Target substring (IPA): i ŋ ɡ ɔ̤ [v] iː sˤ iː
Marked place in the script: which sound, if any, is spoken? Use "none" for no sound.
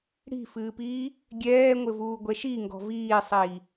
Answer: v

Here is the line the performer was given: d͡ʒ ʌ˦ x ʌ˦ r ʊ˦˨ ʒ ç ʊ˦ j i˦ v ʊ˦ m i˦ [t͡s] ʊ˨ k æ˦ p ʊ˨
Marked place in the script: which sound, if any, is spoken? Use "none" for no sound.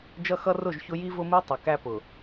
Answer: tˤ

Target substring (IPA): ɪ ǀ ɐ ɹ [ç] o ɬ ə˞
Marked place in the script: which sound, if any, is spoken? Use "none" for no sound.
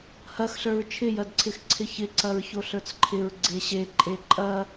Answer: ç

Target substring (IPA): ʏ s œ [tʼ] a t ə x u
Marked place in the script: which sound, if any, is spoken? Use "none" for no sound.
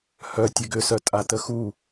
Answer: tʼ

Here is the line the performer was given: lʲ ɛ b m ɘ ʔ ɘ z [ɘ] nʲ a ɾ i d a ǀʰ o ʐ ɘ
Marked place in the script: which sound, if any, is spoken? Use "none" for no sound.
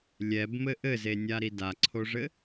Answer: e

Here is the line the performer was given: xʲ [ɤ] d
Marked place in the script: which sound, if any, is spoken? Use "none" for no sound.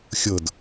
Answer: ɤ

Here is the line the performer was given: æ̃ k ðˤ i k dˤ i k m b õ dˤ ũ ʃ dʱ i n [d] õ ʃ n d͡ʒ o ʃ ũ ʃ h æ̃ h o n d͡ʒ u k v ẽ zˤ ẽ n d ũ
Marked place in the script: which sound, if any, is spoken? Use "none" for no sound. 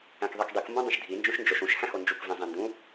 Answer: d͡ʒ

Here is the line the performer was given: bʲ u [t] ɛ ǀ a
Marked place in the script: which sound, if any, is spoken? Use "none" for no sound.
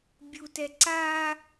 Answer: t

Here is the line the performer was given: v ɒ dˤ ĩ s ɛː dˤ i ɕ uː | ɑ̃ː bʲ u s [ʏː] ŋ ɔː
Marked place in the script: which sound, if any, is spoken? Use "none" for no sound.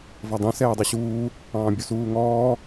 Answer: uː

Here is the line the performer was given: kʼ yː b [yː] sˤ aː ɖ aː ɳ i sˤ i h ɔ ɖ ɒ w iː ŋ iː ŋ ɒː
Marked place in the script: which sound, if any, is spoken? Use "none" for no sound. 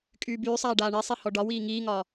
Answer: yː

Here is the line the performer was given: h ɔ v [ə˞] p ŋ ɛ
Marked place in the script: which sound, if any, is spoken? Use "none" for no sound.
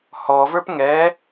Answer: ə˞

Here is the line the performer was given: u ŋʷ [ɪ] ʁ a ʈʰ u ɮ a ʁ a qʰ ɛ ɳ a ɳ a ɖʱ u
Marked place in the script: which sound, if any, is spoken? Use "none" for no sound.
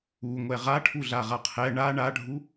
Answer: ɛ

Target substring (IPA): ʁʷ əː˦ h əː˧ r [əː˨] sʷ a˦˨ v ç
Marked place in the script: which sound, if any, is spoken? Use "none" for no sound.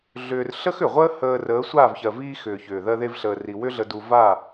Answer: əː˨˦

